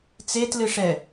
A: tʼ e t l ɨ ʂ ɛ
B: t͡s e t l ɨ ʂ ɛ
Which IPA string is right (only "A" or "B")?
B